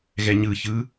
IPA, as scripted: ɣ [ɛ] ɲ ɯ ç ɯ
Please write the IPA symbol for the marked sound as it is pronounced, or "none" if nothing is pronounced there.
ɛ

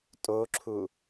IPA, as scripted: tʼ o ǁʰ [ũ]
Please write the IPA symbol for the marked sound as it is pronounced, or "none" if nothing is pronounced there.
u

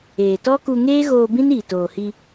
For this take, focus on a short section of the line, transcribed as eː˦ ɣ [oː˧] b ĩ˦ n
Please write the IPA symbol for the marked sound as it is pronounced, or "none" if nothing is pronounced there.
oː˧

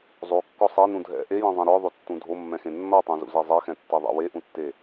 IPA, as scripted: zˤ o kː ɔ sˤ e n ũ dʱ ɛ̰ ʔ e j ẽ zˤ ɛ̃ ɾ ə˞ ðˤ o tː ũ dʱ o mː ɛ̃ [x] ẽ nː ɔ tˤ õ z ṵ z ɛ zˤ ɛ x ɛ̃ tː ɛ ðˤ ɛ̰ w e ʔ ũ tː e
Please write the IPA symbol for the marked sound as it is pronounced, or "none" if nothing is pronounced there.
x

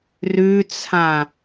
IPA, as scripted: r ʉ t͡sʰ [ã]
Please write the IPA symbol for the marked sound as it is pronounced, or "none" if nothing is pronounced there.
ã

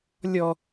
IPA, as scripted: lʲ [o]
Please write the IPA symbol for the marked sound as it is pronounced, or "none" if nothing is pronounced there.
ɔ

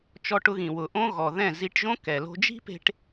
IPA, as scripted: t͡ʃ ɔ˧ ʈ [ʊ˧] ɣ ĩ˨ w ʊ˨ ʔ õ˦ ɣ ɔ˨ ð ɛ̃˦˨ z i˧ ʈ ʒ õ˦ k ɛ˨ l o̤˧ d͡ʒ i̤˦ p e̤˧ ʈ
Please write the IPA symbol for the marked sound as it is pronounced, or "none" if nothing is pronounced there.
ʊ˧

